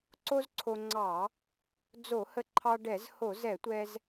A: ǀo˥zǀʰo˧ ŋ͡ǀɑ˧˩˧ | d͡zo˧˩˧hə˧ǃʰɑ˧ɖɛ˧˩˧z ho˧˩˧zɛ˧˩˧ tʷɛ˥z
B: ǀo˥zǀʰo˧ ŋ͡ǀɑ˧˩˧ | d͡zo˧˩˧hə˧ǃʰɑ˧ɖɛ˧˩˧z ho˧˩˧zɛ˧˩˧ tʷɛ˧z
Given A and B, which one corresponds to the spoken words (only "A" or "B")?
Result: B